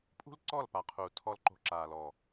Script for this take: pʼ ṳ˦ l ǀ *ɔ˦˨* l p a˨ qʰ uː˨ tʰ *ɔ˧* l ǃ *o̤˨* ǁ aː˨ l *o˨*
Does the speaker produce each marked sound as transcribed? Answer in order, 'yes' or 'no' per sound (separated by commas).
yes, yes, no, no